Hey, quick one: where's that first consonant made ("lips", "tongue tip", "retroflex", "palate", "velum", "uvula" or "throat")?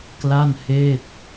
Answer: velum